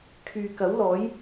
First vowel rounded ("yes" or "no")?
yes